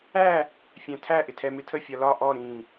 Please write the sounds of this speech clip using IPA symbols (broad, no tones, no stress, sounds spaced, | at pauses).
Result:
æ | fʲ æ̃ tʰ æ ʔ ɪ tʰ ɛ m ɪ tʰ ə fʲ ɒ l ɒ ʔ ɔ ɾ ĩ